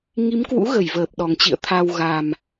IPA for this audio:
ŋ i˨˦ m k w ṵ˧˥ ɣ ə˧˩ j v əː˨˩ p̚ ɗ ɔ˨˩ ŋ t͡ɕ ḭ˧˨ ə̯ t̪ʰ a˧ w ɣ a˨˩ m

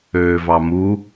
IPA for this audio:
øː v ɑ m u

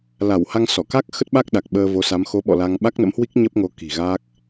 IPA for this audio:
l a˧˩ w h a˧ ŋ s ɔ˧˩ k a˦˥ k̚ x ə˦˥ t̚ ɓ a˦˥ k̚ ɗ a˨˩ k̚ ɓ əː˧ v o˨˦ s a˨˦ m x o˨˦ ɓ ɔ̰˧˨ l a˧ ŋ ɓ a˦˥ k̚ n ə̰˧˥ m h w i˦˥ k̚ ɲ ə˦˥ p̚ ŋ o˨˦ k i̤˨˩ ɣ a˦˥ k̚

